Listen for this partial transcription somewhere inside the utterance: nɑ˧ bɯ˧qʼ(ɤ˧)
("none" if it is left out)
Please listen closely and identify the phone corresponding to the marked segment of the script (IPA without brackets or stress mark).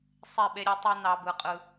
ɯ˧